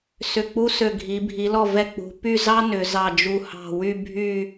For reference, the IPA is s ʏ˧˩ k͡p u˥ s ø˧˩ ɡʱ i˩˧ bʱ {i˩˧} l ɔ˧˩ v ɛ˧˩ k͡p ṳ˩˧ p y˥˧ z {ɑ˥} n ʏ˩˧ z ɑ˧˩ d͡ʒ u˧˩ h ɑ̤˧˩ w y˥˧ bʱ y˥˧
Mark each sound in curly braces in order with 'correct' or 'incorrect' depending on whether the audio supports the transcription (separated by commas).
correct, correct